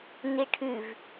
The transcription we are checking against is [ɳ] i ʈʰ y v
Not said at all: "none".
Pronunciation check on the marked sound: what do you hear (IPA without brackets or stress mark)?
n